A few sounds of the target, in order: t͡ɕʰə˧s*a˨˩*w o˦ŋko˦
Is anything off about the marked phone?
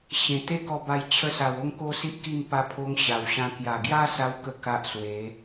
no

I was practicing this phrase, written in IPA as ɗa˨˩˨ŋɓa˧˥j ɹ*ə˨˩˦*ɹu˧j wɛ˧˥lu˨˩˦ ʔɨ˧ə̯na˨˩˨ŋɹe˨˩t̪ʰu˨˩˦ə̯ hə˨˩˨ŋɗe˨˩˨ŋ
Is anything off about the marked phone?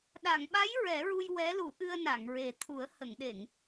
yes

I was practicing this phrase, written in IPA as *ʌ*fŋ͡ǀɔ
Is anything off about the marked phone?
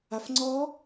yes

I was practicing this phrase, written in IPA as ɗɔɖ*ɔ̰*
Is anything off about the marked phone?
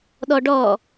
yes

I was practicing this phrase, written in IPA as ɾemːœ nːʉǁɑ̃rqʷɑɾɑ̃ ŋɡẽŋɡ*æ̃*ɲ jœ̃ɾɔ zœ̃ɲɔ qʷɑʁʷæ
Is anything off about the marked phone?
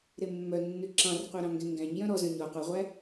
no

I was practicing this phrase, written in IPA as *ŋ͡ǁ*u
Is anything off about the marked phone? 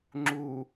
no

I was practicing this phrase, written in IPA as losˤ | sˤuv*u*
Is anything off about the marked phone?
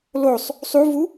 no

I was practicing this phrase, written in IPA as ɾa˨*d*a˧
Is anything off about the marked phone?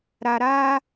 yes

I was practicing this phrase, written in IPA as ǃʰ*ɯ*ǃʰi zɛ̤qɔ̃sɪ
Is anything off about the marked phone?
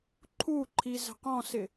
yes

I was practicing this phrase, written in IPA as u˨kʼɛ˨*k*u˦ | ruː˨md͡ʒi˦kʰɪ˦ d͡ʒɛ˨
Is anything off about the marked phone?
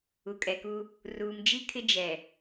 no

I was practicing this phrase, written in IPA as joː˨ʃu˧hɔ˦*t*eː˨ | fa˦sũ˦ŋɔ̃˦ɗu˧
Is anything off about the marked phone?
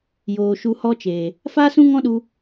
yes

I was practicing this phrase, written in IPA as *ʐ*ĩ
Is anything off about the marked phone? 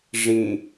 no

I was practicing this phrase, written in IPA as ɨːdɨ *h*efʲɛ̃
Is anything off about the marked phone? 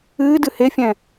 no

